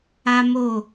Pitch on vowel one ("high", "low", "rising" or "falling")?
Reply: high